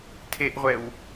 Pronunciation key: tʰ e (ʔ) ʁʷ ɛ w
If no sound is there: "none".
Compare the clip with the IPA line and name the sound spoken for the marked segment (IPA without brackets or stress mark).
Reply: ʔ